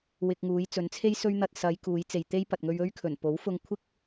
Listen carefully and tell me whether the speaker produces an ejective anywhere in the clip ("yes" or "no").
no